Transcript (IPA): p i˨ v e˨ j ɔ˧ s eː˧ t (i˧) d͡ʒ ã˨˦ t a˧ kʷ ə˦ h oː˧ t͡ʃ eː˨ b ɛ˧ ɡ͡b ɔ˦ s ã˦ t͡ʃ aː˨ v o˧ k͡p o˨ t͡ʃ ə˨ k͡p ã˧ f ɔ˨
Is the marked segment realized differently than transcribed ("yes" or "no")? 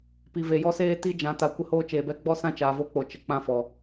no